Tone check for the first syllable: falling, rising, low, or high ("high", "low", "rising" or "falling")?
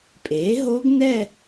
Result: rising